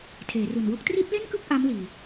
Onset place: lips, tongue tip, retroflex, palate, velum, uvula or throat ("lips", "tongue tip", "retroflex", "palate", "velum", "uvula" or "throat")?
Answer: tongue tip